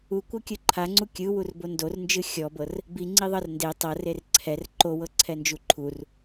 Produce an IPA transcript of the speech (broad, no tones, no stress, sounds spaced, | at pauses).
u kʷ ɤ kʲ ɯ ǃʰ a ŋ͡ǀ u kʲ ɯ w u r b o n d o r n d͡ʒ ɯ xʲ ɔ b ɤ r | b i ŋ͡ǀ i ðˤ ɤ r n d e tˤ ɤ r e r ǀʰ ɛ r ǃ o w ɤ ǀʰ ɛ n d͡ʒ u ǃʰ u r